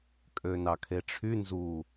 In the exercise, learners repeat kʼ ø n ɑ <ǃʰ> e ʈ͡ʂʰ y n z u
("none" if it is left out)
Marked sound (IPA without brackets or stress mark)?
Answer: kʰ